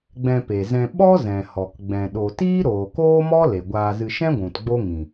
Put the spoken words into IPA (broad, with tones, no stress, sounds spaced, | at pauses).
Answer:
ɡ͡b ɛ̃˧ p e˨ z ɛ̃˧ ɓ ɔ˦ z ɛ̃˨ h ɔ˨ k ɡ͡b ɛ̃˨ ɗ o˨ t iː˦ ɾ oː˨ k oː˦ m ɔ˦ l e˨ ɡʷ aː˧ z ɨ˧ ʃ ɛ̃˦ ɡʷ ũ˨ t ɡ͡b o˦ ŋ ĩ˨